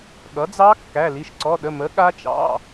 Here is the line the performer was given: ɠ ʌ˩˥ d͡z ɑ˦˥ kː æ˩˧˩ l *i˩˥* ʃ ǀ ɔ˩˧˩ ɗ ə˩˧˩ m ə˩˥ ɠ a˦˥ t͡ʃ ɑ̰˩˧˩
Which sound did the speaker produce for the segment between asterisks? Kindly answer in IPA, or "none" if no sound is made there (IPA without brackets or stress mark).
i˩˧˩